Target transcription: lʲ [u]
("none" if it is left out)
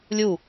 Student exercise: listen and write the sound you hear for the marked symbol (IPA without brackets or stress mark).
u